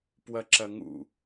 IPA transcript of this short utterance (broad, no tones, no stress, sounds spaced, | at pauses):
p w ɐ ǁ ɐ ŋ ṵ